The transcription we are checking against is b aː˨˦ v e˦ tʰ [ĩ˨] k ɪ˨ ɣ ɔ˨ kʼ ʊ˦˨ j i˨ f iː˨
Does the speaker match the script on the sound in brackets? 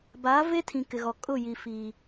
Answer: yes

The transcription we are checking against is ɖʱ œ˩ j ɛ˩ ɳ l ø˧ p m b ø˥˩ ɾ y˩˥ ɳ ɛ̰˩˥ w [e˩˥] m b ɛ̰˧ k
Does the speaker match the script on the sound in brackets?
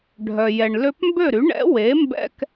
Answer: yes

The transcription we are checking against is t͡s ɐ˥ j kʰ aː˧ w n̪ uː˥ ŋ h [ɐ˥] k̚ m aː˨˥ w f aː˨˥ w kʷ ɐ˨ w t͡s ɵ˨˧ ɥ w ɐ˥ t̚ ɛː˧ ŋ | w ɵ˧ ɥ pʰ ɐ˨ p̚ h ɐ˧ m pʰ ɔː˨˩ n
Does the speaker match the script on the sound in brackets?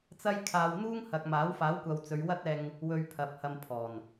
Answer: no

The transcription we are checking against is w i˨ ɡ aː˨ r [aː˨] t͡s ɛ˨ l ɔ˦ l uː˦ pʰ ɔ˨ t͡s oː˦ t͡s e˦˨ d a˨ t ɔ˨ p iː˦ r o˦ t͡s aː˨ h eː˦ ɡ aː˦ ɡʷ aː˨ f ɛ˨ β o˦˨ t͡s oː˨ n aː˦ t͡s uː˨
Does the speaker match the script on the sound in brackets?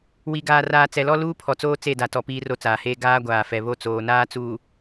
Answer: yes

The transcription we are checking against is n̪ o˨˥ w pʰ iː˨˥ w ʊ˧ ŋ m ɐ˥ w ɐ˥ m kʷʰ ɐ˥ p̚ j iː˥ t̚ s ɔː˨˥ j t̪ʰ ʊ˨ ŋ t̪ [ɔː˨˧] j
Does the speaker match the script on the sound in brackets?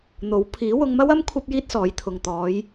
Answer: yes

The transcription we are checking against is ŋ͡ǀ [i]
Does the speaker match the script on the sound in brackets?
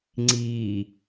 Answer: yes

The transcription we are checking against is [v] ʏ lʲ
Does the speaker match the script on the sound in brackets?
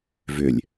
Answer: yes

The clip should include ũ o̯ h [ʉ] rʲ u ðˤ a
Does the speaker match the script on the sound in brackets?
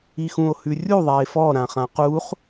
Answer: yes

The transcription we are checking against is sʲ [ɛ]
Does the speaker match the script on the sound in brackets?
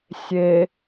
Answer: no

